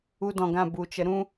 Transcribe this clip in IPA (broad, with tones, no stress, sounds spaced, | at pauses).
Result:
u˧ d ɔ̃˨ ɡ ã˦˨ b u˨ t͡ʃ ə˨˦ ɾ ũ˦